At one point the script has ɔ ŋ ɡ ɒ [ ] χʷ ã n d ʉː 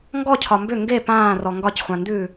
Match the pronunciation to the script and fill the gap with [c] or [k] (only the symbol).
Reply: c